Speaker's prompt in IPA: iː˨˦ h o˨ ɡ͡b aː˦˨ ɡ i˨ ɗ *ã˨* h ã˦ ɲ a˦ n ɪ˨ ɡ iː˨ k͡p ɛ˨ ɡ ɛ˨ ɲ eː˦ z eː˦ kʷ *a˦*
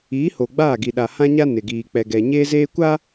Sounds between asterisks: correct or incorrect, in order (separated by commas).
incorrect, correct